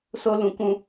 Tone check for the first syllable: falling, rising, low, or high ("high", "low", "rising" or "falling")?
high